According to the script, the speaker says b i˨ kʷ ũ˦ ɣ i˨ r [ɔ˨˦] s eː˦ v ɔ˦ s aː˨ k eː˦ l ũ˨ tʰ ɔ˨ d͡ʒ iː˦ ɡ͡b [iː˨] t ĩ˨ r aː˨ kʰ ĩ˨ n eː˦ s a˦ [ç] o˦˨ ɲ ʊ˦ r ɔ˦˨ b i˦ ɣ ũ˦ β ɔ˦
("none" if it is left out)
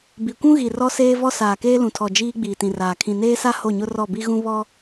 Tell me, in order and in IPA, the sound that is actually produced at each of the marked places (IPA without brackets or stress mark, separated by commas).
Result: ɔ˦, iː˨, h